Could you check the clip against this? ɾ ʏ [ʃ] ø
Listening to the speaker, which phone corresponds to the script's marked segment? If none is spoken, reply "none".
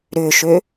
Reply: ʃ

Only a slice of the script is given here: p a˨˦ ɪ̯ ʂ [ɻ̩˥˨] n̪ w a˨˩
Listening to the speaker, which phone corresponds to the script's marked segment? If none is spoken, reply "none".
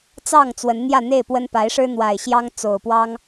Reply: ɻ̩˦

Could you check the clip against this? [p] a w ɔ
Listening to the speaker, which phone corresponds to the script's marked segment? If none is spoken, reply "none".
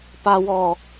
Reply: p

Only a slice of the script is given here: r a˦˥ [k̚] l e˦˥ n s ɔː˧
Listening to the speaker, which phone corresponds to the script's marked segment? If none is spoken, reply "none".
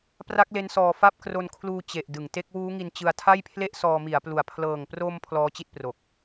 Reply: k̚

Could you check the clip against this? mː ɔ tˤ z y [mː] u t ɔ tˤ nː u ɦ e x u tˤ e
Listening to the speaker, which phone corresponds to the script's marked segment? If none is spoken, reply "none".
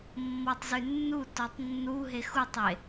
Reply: nː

